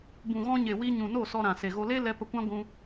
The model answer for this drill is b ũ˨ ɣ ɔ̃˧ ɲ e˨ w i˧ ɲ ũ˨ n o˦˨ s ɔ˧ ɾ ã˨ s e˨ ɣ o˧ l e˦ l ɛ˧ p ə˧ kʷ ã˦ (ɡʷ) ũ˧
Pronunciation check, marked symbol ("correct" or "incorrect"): correct